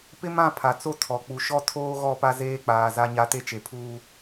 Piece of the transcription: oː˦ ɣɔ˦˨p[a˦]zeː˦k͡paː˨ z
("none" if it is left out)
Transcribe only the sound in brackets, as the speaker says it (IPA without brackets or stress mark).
a˦